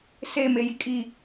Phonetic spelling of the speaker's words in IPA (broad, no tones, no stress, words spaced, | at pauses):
se mejikʼi